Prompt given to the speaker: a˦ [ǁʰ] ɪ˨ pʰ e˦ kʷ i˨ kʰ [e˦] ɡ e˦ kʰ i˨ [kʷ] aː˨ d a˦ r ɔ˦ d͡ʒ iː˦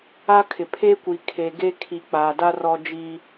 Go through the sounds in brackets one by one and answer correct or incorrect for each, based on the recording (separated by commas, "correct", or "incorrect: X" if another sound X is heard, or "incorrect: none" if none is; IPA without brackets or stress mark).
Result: incorrect: kʰ, incorrect: e˨, incorrect: k͡p